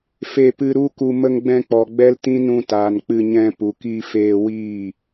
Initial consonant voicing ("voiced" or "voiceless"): voiceless